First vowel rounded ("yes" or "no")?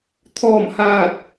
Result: yes